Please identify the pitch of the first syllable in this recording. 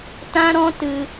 high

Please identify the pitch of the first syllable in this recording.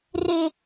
high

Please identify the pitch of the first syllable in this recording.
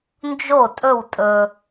falling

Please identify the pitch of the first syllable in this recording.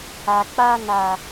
low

